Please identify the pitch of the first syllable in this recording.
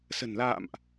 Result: low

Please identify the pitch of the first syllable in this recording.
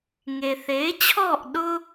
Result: low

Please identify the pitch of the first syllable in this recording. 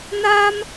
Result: high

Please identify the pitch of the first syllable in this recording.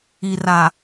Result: low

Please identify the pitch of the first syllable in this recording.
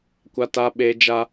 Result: high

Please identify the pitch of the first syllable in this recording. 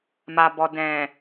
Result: low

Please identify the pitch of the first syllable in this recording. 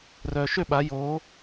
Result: low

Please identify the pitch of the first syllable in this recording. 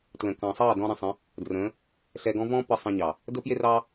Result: low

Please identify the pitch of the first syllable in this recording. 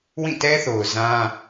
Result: falling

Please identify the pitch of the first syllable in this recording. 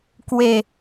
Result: falling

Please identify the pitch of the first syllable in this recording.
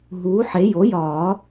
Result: rising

